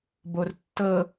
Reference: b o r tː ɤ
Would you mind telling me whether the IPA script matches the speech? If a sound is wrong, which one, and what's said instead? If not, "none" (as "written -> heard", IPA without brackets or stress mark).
none